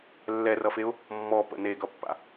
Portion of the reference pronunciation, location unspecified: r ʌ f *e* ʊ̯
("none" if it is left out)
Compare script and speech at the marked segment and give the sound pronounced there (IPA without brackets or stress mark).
e